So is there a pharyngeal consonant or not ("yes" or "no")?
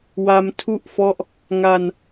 no